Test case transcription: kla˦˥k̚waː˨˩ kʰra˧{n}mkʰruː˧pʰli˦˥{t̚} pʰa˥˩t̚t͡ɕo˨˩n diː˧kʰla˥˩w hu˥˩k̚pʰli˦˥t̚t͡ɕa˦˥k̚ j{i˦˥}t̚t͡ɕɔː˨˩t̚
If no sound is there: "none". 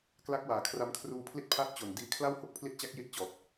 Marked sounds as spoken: none, t̚, i˦˥

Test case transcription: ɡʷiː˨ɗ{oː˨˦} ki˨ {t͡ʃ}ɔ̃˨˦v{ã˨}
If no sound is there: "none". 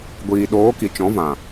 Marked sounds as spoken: oː˨˦, t͡ʃ, ã˨

